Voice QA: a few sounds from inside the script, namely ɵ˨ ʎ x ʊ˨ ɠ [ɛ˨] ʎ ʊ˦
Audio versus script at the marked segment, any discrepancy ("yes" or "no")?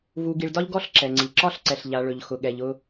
no